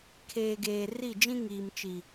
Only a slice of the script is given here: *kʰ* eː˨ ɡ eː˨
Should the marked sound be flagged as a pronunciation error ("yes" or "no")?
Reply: no